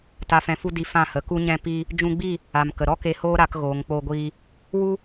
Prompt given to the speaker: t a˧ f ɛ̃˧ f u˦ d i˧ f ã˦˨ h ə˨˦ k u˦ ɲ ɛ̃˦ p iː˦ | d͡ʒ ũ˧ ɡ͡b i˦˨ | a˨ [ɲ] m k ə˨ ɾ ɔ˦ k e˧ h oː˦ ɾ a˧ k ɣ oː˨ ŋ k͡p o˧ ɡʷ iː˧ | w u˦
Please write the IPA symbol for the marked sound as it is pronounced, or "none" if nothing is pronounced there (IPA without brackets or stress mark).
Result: none